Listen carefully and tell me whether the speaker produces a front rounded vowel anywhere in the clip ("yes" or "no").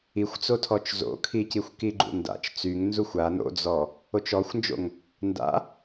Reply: yes